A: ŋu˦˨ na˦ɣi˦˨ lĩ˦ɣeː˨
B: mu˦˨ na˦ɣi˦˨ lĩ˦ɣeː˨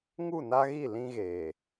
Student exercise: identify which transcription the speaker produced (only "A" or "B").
A